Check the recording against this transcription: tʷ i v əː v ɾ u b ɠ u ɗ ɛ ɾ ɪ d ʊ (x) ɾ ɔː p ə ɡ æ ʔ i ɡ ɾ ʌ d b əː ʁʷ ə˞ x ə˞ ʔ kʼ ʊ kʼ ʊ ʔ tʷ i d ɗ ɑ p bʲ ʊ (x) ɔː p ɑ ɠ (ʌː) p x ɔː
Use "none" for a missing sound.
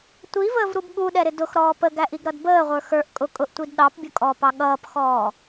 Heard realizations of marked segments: x, kʼ, ʌː

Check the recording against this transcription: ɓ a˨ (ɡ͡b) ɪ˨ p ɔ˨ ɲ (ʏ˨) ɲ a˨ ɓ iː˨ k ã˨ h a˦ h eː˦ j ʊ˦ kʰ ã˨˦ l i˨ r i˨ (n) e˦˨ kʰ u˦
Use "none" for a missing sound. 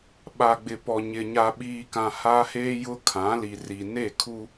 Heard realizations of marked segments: ɡ͡b, ɪ˨, n

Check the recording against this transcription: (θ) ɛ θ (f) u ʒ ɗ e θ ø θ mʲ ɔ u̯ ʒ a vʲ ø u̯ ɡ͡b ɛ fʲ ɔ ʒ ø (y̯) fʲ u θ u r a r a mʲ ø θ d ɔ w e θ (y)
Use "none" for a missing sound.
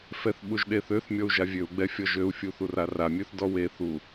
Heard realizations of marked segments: f, ɓ, u̯, u

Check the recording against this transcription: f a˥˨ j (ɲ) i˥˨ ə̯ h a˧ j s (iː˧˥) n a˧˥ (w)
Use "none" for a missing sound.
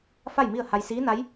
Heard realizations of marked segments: m, iː˧˥, j

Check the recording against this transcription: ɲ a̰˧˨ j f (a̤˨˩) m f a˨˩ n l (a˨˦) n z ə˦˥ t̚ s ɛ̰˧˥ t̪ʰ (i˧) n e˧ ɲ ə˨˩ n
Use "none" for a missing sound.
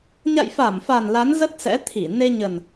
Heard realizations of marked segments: a˧˩, a˨˦, i˧˩

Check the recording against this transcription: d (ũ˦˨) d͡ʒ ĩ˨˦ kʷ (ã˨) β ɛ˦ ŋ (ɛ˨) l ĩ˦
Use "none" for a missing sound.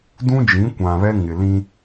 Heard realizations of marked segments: ũ˦, ã˨, ɪ˨

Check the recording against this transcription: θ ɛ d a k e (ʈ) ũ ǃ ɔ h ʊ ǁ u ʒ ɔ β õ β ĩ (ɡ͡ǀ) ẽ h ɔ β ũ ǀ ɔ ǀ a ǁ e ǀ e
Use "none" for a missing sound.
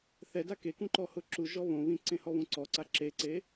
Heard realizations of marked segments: k, ǀ

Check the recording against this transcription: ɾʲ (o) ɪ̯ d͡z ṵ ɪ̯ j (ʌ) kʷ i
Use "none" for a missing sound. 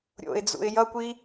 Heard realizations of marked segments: o̰, ʌ

